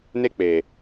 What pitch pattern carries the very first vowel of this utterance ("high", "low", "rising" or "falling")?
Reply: high